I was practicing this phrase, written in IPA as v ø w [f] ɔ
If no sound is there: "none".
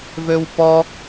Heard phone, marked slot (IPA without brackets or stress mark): p